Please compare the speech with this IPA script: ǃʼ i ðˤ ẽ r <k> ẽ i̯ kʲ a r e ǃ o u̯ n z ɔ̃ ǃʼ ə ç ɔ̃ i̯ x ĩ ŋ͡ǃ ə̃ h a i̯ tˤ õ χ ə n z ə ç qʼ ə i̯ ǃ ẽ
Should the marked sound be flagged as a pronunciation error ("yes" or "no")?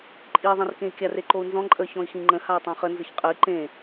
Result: no